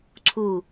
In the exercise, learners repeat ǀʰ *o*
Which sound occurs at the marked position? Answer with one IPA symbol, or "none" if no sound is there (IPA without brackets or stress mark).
u